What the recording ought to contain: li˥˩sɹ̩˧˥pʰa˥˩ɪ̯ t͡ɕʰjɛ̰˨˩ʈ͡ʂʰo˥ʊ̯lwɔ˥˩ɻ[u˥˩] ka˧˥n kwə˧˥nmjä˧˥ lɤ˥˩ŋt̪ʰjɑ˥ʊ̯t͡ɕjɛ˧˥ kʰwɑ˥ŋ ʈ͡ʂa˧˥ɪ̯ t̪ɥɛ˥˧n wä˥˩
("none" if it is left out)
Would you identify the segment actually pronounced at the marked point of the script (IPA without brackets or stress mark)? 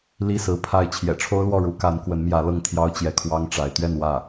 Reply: u˧˥